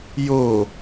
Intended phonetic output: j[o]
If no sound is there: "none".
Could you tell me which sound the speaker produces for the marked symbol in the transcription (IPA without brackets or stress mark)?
o